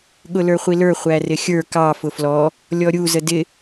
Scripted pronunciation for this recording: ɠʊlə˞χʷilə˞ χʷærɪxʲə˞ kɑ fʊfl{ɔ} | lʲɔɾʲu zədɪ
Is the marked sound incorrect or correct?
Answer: correct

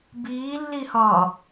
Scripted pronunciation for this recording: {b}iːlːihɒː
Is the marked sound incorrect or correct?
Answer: correct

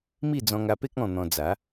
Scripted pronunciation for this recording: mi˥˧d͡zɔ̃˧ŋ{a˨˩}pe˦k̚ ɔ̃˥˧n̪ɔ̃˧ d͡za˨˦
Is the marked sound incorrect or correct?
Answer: incorrect: a˧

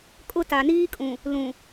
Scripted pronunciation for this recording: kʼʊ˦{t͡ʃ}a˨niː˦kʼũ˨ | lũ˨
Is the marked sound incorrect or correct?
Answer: incorrect: t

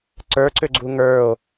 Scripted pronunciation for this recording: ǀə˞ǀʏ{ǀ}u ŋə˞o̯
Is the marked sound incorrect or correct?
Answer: incorrect: ɡ͡ǀ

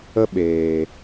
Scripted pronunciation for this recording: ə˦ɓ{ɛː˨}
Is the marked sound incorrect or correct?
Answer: incorrect: eː˨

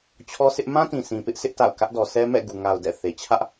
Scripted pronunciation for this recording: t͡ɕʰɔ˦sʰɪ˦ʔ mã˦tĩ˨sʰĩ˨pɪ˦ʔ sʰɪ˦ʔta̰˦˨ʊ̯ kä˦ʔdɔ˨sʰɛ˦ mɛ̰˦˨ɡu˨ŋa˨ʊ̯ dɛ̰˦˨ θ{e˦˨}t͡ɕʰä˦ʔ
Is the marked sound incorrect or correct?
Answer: incorrect: e˨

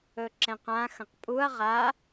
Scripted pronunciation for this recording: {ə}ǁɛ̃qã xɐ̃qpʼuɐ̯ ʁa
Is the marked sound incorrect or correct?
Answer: incorrect: ɵ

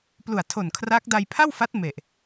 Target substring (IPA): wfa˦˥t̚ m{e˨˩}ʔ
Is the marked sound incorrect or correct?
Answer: correct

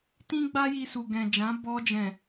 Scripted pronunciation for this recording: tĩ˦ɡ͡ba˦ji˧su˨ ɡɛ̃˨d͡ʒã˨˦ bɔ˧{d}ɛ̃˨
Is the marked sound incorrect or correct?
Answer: incorrect: d͡ʒ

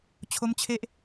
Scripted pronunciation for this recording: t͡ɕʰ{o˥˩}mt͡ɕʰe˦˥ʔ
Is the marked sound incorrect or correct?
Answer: incorrect: o˦˥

